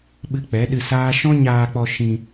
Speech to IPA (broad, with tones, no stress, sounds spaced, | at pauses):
ɓ ɨ˧ k͡p ɛ˨˦ ɗ ɨ˧ s aː˦ ʃ ɔ̃˦ ɲ aː˧ k͡p ɔ˧ ʃ ĩ˧